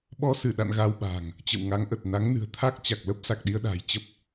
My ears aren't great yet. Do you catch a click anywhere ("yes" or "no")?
no